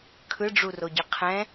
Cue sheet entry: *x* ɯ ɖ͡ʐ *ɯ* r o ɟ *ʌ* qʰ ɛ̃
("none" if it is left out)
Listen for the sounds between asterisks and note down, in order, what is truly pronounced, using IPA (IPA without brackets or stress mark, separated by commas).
kʰ, u, ʌ